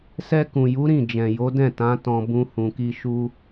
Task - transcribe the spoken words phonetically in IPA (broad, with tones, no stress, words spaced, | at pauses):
sɛ˧kũ˨ju˨˦ ɾĩ˦˨d͡ʒɛ̃˨ jo˨˦dɛ̃˦˨tã˨˦ tɔ̃˧bũ˧ hũ˨ki˧ ʃu˦